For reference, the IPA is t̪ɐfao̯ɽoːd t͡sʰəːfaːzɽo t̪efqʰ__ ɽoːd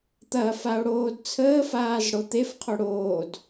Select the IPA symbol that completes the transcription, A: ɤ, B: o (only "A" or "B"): B